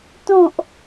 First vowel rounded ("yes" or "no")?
yes